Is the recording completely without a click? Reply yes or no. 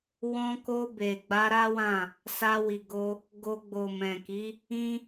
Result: yes